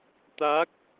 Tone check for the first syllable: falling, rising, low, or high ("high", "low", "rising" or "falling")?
rising